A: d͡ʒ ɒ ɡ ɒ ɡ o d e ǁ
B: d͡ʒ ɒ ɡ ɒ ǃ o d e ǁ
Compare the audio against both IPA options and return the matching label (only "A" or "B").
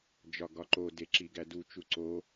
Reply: B